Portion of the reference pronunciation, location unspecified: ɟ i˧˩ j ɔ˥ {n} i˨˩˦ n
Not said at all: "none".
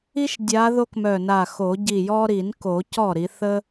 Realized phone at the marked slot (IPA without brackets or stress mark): ɾ